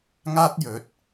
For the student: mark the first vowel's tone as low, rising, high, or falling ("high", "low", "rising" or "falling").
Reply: high